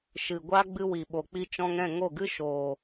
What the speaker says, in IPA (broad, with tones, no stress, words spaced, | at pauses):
ʃɨ˨ɡʷa˦ ɡ͡bɨ˧wi˨ɓo˨k͡pi˧ t͡ʃɔ̃˧ŋɛ̃˦˨ŋo˦˨ɡɨ˦ ʃoː˨